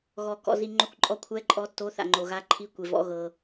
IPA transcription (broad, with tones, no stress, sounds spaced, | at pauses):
ɣ ɔ˨ k ɔ̰˨ z i˨ ŋ͡ǃ o˧˥˧ kʷ ǃʼ ɔ˧˥˧ kʷʰ ɛː˧˥˧ ǃʼ ɔ˧˥˧ tː o˧˥˧ θ a̰˨ ŋ͡ǃ o˨ ɣ a˧˥˧ ǃʰ i˧˥˧ kʷ e˨ v ɔ̰˧˥˧ ɣ ɤ˨